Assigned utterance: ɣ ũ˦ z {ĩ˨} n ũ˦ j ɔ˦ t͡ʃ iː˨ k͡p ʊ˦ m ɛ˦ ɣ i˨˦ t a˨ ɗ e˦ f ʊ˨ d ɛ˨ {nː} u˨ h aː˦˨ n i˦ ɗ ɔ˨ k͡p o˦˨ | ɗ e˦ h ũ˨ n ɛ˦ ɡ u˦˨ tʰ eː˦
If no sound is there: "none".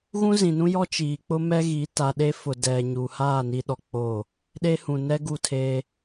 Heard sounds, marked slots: ĩ˨, ɲ

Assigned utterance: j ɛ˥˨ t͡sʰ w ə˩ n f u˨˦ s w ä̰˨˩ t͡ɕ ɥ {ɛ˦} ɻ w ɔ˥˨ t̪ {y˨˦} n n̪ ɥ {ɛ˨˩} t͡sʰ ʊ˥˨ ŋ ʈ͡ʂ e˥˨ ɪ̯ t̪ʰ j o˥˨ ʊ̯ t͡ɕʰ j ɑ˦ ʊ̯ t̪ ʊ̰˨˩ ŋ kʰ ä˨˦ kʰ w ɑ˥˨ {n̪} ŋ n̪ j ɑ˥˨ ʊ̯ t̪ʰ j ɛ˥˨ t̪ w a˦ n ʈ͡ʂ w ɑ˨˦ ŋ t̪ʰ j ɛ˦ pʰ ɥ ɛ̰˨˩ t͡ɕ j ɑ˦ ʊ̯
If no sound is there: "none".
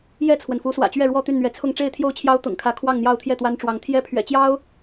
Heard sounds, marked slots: ɛ˥˨, y˥˨, ɛ˨˦, none

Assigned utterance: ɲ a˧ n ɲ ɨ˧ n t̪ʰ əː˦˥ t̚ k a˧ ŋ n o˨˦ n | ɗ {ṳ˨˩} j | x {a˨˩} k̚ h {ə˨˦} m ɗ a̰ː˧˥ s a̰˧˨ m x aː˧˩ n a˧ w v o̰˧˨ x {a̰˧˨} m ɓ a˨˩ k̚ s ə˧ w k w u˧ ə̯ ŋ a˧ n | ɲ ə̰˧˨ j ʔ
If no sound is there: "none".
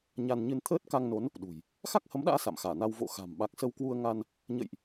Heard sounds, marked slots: ṳ˨˩, a˦˥, ə˨˦, a̤˨˩

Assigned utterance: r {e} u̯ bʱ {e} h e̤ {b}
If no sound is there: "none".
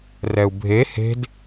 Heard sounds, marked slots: ɛ, e, d

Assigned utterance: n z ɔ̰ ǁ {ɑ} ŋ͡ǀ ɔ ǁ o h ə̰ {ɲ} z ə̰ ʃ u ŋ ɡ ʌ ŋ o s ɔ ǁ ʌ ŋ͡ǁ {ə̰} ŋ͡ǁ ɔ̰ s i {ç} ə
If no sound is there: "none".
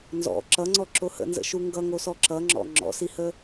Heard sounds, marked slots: ʌ, n, ɔ̰, h

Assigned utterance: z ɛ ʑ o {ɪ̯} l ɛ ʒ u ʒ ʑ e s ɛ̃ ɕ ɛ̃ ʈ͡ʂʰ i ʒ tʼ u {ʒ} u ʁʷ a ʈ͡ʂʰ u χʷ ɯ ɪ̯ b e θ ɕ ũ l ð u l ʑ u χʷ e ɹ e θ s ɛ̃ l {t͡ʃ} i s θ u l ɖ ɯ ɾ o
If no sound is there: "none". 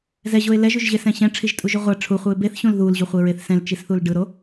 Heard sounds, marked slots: ɪ̯, ʒ, t͡ʃ

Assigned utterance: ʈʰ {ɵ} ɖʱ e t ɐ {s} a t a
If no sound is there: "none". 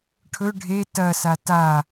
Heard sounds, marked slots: ɵ, s

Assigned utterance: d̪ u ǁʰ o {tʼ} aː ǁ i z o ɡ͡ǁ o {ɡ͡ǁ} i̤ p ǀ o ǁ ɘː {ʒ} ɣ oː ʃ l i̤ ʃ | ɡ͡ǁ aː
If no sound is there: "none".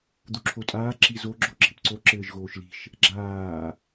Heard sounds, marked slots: tʼ, ǁ, ʒ

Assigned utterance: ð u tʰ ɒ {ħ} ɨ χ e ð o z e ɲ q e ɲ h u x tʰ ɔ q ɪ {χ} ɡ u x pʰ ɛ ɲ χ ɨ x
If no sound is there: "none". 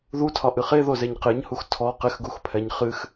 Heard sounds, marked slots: ʔ, x

